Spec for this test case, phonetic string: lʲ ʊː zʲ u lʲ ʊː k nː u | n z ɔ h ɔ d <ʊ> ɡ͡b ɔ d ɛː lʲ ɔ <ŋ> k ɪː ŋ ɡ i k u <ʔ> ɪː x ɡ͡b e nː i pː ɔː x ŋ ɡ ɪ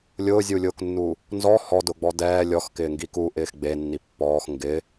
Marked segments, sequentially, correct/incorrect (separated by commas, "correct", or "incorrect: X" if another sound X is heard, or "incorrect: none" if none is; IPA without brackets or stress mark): correct, incorrect: x, correct